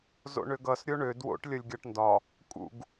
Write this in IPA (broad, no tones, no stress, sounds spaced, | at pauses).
z o̰ ɳ ø ɡ ʌ s ɾʲ o ɳ ø d w o̰ ʈ lʲ ʌ lʲ ɡʲ ɒ ʈ n d ɒ | kʼ ṵ ɡ